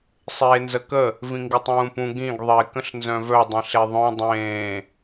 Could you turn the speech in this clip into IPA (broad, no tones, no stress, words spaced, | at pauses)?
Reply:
sˤeːnzəkə | vĩŋɡɪtˤũːpũ ɡĩɡ ðˤe kə̃ɬnzœ̃vœ dˤĩɬeðˤœ̃ dˤẽː